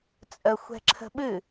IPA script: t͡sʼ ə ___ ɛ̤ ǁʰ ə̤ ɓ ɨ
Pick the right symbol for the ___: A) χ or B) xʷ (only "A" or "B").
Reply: B